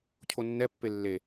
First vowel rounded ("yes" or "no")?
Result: yes